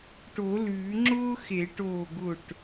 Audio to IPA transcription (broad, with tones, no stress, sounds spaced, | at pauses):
ʈ o˨˩˦ l ʉː˨˩˦ ŋ͡ǁ ʊː˥ x e˨˩˦ ʈ oː˧˩ ɡ ʊ˧˩ ʈ